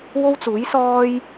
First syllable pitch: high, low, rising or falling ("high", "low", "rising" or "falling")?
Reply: high